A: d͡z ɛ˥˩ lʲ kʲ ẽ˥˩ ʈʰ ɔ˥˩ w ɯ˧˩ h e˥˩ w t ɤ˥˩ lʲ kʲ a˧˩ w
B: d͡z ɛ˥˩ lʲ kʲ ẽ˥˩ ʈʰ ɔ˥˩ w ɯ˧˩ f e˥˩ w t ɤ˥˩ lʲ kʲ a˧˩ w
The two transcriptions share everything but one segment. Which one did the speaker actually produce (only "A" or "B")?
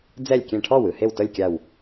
A